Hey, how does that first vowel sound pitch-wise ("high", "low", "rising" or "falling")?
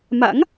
rising